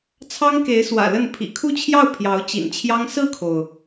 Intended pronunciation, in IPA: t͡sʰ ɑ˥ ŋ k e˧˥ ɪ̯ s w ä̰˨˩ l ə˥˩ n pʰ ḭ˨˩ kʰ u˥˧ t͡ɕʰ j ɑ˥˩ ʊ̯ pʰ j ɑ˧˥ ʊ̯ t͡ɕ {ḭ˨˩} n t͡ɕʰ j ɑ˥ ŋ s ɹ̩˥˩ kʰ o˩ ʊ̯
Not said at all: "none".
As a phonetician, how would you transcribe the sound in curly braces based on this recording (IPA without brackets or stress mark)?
ḭ˨˩